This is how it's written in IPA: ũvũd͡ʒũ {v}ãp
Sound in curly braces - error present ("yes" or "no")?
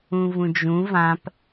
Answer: no